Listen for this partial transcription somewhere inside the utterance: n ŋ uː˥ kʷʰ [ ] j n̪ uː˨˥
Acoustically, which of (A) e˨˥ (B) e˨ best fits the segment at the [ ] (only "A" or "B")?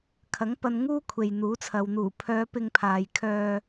B